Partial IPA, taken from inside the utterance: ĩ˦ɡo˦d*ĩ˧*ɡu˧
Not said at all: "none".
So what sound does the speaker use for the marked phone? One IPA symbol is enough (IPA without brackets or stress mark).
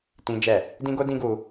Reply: ĩ˦